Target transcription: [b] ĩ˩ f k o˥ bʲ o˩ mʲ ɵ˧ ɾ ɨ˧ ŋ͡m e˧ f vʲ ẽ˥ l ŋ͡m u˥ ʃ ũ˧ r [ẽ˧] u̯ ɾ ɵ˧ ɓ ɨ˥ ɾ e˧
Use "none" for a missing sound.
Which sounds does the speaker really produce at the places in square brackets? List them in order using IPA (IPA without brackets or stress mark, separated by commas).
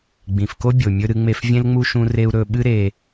ɡ͡b, e˧